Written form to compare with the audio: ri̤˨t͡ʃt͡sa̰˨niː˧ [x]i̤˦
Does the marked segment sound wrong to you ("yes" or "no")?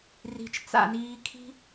yes